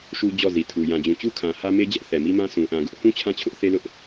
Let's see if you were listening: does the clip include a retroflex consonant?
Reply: no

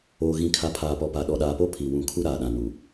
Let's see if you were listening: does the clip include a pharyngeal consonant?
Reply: no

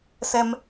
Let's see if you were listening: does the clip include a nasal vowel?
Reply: no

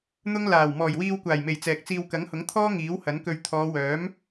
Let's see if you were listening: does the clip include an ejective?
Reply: no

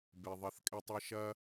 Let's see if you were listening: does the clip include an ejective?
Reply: yes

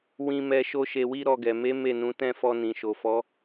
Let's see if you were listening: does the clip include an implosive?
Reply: no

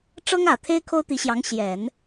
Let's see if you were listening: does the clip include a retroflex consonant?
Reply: yes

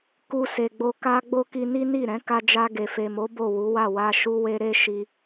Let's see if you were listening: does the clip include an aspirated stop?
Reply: no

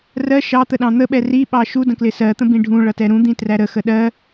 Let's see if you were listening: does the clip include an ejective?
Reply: no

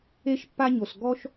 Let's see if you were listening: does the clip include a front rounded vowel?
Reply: no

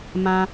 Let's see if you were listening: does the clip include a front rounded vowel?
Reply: no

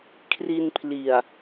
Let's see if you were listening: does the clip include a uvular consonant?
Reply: no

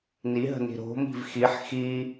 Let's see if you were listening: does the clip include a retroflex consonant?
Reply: no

